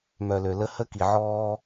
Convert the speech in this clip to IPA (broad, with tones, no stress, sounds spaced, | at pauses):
m œ˨ l ø˨ l ə˦ h ə˦ k i˨ ʕ ɔː˦